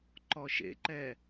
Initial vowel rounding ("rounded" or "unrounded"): rounded